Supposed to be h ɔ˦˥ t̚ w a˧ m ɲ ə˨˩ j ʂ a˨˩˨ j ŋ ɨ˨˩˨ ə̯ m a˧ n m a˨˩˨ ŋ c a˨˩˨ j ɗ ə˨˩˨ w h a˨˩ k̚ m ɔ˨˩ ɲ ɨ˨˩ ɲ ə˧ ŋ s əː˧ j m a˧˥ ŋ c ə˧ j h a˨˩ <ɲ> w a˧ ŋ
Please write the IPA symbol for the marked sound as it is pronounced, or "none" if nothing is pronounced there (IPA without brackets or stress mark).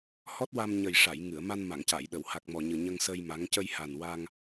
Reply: n